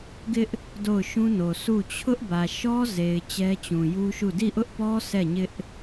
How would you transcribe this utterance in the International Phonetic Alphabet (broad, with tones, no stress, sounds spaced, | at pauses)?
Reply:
ɡ ɪ˦ ʔ | d o˦˨ ʊ̯ ʃ ũ˦ n o˨ sʰ u˦˨ t͡ɕʰ ʊ˦ ʔ b ä˨ ʃ ɔ˦ z e˨ ɪ̯ t͡ɕ ɛ˦ t͡ɕ ũ˨ j u˦ ʃ u˦˨ d i˦˨ ʔ ʊ˦ ʔ p ɔ˦ s ɛ˦˨ ɲ ɪ˦ ʔ